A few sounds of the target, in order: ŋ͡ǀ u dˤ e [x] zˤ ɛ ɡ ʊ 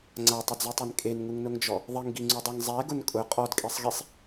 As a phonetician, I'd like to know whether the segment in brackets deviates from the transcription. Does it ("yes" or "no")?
yes